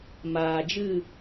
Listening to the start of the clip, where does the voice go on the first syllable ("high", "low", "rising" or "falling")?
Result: low